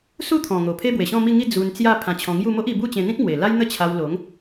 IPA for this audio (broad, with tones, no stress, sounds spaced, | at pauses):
s u˥˧ t̪ʰ ɔ̃˨˩ ŋ o˨˩ pʰ e˦ b w e˨˩ ɕ ɔ̃˥˧ m i˥˧ ŋ i˥˧ d͡z u˧ n t͡s j a˥˧ pʰ ã˧ t͡ɕʰ ɔ̃˧ ŋ j u˥˧ m o˦ ʔ i˧ b u˥˧ t͡ɕ ẽ˧ n̪ ĩ˦ k̚ m w e˨˩ l a˦ j n̪ ə˦ t͡ɕʰ a˧ w l o˨˦ ŋ